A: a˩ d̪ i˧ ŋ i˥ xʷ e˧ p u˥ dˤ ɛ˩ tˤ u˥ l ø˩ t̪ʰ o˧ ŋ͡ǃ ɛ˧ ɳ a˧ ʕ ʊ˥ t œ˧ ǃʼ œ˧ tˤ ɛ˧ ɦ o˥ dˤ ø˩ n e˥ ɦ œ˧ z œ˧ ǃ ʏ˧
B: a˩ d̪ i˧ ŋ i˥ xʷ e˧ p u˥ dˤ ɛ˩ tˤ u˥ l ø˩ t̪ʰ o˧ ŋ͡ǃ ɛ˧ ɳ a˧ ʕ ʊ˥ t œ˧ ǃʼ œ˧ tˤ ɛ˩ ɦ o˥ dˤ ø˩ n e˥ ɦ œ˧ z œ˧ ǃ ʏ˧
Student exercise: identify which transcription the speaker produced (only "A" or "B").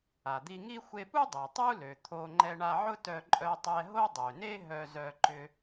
A